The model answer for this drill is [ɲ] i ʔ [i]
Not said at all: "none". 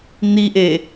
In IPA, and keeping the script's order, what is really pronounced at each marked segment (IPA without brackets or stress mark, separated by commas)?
n̪, e